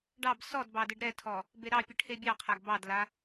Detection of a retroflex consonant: present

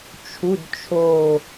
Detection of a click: absent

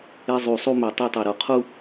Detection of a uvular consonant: present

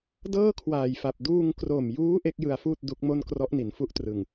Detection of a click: absent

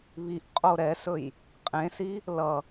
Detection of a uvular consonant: present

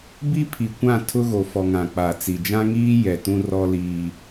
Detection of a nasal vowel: present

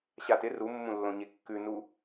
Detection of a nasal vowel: present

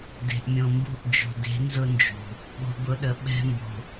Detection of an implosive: present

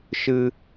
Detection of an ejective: absent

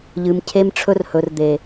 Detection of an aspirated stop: present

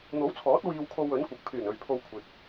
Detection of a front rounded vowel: present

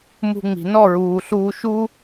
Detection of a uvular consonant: absent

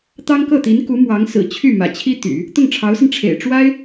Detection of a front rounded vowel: present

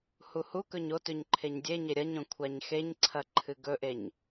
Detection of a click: present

